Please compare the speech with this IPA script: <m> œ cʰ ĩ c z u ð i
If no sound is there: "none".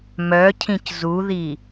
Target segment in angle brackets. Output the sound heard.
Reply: m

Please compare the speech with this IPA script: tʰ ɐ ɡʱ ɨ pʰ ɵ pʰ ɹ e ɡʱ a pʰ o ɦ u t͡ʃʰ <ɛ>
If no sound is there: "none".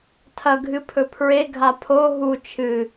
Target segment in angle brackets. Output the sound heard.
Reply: ɨ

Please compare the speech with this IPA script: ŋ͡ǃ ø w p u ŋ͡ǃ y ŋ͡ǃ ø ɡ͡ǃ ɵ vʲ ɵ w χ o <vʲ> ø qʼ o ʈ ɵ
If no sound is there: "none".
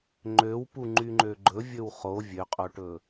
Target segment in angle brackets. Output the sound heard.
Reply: vʲ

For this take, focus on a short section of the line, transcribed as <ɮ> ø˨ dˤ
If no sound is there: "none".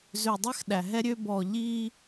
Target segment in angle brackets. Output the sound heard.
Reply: z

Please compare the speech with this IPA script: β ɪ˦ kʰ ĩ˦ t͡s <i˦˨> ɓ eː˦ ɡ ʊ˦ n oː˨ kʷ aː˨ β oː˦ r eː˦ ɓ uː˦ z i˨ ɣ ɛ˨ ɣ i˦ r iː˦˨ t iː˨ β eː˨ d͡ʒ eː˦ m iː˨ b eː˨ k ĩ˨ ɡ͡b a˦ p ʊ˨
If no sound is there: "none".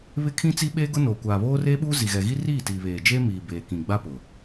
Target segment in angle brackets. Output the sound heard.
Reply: i˦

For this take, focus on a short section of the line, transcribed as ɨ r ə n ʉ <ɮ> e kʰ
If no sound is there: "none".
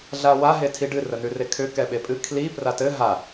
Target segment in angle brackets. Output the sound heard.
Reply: r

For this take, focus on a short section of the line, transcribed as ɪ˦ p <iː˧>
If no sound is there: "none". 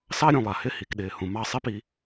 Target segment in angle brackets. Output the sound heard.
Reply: i˧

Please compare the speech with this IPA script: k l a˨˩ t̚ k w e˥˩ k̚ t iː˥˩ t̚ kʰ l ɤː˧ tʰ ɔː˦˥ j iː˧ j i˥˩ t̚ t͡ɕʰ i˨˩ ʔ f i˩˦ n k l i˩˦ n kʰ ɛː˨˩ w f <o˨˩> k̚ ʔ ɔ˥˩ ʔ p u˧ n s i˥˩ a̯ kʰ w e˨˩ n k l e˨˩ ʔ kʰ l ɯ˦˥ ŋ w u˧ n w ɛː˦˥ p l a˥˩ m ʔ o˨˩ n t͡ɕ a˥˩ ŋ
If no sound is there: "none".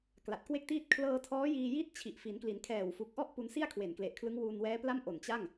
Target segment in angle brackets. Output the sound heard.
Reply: u˨˩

